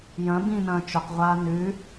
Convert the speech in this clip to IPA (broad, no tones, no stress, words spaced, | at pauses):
jɐ̃ bĩnɐ̃ː t͡ʃɵqʁʷaː nʉ